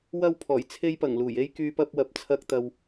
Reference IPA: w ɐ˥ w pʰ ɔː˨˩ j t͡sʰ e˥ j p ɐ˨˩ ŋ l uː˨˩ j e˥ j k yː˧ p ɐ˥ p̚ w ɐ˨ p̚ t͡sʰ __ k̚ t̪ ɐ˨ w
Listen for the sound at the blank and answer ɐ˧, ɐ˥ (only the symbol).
ɐ˧